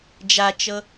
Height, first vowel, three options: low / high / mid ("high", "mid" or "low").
low